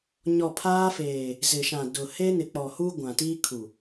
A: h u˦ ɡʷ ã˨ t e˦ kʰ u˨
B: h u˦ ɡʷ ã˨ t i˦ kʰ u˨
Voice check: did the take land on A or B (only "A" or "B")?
B